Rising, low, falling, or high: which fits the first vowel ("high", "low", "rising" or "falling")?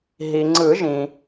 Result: low